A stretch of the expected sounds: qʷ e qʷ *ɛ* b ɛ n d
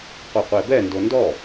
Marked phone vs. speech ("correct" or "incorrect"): incorrect